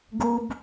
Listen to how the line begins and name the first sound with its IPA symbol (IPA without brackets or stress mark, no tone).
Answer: ɡ